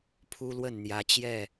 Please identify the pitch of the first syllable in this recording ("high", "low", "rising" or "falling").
high